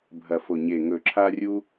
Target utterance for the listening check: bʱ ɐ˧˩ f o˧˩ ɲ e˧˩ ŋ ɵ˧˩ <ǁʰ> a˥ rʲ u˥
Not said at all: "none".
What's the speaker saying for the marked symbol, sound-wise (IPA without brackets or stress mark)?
ǁʰ